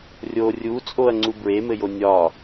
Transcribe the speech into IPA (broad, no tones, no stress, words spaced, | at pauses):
rʲo rʲut͡sʼoɐ̯ŋ͡ǀu bɹemɘjo nʲɒ